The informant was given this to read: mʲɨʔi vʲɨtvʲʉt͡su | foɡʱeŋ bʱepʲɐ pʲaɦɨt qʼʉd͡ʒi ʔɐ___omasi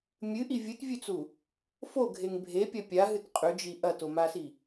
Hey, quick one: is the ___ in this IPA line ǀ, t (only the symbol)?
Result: t